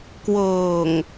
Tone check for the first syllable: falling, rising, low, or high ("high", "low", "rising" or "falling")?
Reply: low